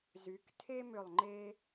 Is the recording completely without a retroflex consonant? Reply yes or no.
yes